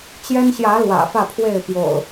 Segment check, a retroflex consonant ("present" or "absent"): absent